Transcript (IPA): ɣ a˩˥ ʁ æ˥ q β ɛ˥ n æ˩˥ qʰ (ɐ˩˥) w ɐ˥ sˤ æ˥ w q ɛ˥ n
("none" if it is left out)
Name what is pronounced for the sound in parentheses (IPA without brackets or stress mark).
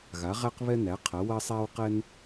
ɐ˩˥